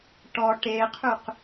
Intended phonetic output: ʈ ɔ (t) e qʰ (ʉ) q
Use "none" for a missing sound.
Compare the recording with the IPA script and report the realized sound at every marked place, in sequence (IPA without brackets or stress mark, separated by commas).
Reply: ʈ, ʉ